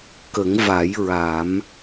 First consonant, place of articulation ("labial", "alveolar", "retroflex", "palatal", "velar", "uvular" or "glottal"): velar